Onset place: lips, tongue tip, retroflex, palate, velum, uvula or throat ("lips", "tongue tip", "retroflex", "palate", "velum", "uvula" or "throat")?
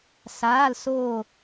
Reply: tongue tip